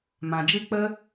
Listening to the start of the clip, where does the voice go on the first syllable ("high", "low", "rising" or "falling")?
low